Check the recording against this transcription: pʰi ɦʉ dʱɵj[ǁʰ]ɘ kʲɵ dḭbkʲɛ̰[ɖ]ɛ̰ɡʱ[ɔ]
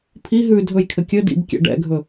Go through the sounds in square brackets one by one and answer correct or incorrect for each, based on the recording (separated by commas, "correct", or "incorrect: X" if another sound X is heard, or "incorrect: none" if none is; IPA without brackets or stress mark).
incorrect: kʰ, correct, incorrect: ɵ